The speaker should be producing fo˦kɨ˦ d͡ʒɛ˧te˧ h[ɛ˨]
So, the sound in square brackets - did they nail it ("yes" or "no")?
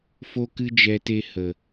no